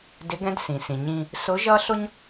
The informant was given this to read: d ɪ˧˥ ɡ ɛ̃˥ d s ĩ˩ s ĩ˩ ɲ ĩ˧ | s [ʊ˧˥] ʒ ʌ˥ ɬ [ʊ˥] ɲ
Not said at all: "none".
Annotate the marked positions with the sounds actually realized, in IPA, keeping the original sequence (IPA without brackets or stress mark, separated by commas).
ʊ˧˥, ʊ˥